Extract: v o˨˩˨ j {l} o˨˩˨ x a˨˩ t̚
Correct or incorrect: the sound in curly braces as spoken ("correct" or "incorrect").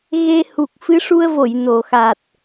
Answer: incorrect